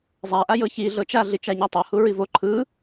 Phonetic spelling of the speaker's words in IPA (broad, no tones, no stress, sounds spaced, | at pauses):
zˤ a ʔ a j ɤ ç i ɮ ɤ t͡ʃ a ɮ i t͡ʃ a ɲ a tˤ ɤ h u ɹ i v o ǃʰ ɯ